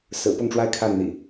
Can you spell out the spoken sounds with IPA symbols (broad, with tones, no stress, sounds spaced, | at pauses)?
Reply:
s ɹ̩˨˩ p ʊ˥˨ ŋ ʈ͡ʂ w a˦ ɪ̯ kʰ a˥˨ n n̪ ḭ˨˩